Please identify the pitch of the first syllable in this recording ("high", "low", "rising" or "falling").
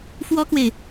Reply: high